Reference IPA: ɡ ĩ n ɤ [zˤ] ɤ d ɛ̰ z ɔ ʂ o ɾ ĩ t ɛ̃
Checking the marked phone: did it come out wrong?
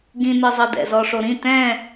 no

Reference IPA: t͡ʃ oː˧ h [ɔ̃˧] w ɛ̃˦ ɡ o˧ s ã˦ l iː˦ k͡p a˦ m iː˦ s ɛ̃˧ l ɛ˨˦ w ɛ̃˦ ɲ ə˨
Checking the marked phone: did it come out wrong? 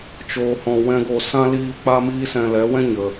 no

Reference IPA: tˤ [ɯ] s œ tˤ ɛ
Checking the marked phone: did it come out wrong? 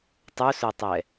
yes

